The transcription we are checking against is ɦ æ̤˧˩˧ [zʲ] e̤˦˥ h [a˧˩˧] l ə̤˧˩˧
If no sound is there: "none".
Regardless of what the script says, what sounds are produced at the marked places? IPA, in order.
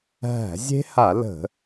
zʲ, a˧˩˧

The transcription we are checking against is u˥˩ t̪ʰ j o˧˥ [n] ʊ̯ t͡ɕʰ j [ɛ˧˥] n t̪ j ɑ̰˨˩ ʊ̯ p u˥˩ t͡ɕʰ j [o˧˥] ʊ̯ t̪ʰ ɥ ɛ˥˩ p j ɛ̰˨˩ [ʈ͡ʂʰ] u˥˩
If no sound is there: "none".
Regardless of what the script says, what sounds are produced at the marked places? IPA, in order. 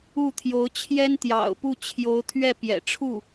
none, ɛ˥, o˧˥, ʈ͡ʂʰ

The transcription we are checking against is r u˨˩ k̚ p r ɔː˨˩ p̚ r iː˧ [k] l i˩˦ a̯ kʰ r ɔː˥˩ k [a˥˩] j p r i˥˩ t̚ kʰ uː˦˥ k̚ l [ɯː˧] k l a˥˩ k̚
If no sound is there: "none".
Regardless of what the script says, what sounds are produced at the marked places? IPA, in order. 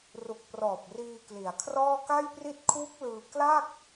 k, a˥˩, ɯː˧

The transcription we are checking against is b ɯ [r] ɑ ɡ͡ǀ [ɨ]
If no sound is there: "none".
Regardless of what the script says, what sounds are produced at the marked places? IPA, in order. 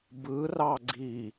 r, i

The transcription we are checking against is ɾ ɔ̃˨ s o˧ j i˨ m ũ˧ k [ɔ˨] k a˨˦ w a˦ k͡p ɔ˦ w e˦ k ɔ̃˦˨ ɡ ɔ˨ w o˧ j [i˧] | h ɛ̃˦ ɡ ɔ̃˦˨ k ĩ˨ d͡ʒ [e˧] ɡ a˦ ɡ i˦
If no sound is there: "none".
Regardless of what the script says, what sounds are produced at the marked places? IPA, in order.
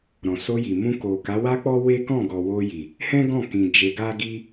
o˨, i˨, e˧

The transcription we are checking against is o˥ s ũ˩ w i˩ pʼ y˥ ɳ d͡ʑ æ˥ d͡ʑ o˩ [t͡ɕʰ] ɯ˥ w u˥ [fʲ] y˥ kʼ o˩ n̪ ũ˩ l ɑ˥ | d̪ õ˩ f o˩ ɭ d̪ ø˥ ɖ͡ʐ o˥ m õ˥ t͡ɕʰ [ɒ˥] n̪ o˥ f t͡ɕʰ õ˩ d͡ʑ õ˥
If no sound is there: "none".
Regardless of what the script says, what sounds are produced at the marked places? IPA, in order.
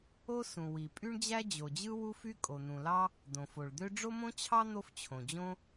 d͡ʑ, f, ɑ˥

